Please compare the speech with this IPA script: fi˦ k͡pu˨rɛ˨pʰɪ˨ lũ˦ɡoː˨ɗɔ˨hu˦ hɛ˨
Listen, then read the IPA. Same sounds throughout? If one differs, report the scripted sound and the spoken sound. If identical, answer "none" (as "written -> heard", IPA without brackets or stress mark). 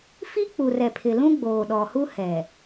ɡ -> ɡ͡b